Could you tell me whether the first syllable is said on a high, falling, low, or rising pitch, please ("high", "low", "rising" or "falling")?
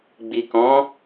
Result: low